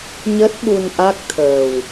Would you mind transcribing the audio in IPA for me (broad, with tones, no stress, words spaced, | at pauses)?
ɲə˦˥t̚ ɓu˧nʔa˦˥k̚t̪ʰəː˨˩w